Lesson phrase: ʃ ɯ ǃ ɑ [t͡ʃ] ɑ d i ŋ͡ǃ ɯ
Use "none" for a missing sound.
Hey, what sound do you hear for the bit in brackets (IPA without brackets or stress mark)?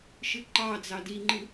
d͡z